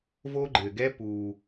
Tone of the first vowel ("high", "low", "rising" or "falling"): high